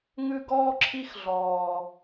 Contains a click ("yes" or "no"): yes